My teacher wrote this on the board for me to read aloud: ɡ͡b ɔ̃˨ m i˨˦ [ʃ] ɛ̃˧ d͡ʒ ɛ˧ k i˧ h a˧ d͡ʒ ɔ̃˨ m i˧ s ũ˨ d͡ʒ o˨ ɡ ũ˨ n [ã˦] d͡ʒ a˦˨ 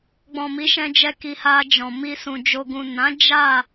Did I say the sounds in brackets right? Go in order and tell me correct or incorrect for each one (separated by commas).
correct, incorrect